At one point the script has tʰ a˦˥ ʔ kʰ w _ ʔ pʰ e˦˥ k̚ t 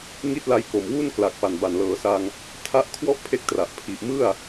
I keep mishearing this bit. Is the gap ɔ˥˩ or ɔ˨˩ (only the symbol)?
ɔ˥˩